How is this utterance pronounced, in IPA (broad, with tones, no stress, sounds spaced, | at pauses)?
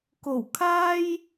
k o˨˩ w kʰ aː˧ j